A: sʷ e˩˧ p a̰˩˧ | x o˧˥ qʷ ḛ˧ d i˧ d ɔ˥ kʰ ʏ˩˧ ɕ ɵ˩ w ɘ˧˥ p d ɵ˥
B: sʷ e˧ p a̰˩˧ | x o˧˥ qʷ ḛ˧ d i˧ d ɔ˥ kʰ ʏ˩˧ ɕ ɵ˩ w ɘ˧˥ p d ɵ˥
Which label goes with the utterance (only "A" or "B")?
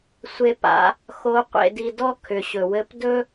B